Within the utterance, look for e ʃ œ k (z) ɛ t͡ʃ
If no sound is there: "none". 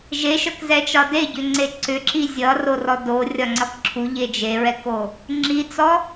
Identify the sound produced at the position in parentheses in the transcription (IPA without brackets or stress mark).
z